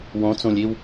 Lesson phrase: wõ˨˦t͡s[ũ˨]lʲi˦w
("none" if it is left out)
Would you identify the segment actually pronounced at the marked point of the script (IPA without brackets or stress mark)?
ũ˨